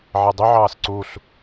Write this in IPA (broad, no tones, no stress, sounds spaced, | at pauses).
ʕ e dˤ ʏ ʕ ɑː s ǀ u ɬ